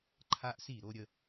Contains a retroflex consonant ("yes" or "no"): no